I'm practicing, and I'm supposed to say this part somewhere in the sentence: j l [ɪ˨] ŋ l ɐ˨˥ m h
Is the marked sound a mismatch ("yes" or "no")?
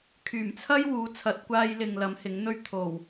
no